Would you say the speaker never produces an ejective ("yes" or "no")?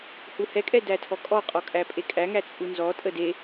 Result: no